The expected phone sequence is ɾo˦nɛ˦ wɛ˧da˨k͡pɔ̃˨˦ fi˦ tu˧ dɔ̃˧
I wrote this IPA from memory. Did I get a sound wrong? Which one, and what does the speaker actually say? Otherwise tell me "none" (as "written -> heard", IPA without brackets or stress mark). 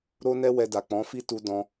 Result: none